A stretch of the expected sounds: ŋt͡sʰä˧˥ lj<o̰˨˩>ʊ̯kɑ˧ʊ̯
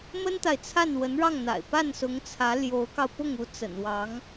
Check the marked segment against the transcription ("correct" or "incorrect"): incorrect